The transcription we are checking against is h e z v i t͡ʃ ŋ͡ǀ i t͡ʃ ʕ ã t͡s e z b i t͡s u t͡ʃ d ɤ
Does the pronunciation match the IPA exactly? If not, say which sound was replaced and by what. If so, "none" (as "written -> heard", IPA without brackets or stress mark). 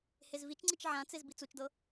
none